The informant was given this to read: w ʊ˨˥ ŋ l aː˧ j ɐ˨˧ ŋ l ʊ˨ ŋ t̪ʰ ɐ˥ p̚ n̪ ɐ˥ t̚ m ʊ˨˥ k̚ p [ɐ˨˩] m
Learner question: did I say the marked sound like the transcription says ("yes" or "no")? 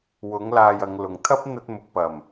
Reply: yes